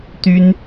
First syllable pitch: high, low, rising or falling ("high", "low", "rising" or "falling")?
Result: high